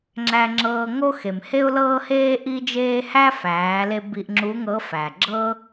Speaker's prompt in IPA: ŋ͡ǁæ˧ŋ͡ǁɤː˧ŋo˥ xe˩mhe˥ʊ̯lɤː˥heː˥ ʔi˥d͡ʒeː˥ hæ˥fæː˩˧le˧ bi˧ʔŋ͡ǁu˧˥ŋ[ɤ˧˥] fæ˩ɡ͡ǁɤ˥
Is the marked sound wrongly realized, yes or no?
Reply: no